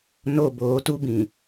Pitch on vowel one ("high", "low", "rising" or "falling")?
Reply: falling